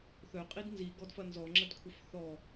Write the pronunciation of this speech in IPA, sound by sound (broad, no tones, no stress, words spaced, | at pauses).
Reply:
θœqʼid nzi ɡɔdfɐnzɔ ŋ͡ǁədkʷʰœfθɔ